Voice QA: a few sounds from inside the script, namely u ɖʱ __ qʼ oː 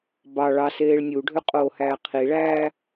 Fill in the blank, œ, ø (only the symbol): ø